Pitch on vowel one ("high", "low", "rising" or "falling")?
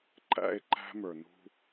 high